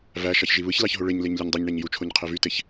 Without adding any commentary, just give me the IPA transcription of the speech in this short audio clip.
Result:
v æ ʃ ɑ ç ʒ i β ɯ ç l ɑ ç ɦ o ɭ e ɲ l e ɲ lʲ u ɲ dˤ e ɲ ɳ æ ɲ j u t͡ʃʰ o ɲ qʰ e v y t e ç

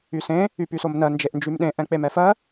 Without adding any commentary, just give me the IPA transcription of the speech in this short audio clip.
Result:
y s ẽ | y p y s o m n ɜ n d͡ʒ e ʔ n d͡ʒ y m ɗ ẽ ʔ ɛ̃ k͡p e m ɛ f ɜ

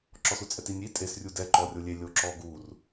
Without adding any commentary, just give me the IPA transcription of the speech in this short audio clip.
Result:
ǁ ɔ s u t͡sʼ ɛ t i nʲ i tʼ e s rʲ u d ɛ ǃ ɔ rʲ o lʲ e lʲ o ǁ ɔ ɡ u r

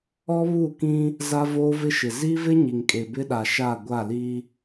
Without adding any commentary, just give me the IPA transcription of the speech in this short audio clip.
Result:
ɔ˦ β u˦˨ k ĩ˦ | z a˦ v oː˦ v ɪ˦ ʃ ɪ˨ z i˦ v ɪ˦ ɲ i˨ ŋ kʼ e˨ b ɪ˦ ɗ a˨ ʃ a˦˨ ɡʷ a˦˨ l i˦

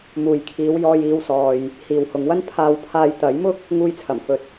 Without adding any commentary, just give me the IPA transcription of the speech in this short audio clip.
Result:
m uː˨ j kʰ iː˨˧ w j ɔː˧ j iː˧ w s ɔː˨ j | h iː˨ w h ʊ˨˧ ŋ w ɐ˥ n pʰ aː˧ w pʰ aː˧ j t̪ ɐ˨˥ j m ʊ˥ k̚ | ŋ uː˧ j t͡sʰ ɐ˨˩ m f ɵ˨ t̚

